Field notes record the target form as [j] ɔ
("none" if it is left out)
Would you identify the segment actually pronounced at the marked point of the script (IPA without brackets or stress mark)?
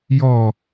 j